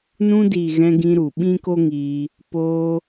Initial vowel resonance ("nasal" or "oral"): nasal